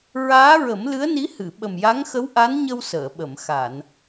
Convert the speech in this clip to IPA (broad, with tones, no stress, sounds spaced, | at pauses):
ɹ aː˧˥ ɹ ə˨˩˦ m l ɨ˧˥ ə̯ n i˧˥ h ɨ˨˩˨ ɓ ə˨˩ m j a˧˥ ŋ x ə˧˥ w ʔ a˧˥ n ɲ ə˧ w s əː˨˩˨ ɓ ə˨˩˨ m x a˨˩˨ n